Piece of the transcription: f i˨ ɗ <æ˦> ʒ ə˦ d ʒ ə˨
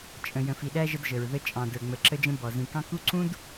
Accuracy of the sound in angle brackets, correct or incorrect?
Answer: correct